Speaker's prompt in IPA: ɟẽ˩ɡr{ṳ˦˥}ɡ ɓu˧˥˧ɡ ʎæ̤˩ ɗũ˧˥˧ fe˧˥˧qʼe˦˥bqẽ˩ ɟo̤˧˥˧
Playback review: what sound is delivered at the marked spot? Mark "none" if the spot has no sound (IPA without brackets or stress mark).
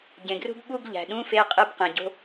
ṳ˦˥